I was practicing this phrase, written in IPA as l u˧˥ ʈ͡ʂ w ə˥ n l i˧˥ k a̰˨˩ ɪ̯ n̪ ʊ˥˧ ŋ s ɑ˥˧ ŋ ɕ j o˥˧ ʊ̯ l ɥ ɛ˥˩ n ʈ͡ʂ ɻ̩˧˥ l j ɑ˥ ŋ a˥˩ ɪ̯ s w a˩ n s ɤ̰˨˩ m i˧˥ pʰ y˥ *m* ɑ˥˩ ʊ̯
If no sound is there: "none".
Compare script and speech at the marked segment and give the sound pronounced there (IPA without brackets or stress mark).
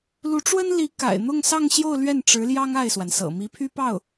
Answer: p